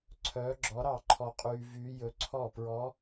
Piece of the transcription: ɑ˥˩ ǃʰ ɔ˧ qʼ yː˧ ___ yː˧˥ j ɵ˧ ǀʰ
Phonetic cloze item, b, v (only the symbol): v